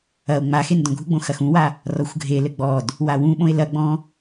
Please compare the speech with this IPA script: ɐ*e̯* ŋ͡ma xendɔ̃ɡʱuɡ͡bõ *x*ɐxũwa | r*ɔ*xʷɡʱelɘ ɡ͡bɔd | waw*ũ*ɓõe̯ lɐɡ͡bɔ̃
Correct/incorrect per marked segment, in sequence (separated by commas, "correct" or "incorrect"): incorrect, correct, correct, correct